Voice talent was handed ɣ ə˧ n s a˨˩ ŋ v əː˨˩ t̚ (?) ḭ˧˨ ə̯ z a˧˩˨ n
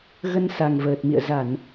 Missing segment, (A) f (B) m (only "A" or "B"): B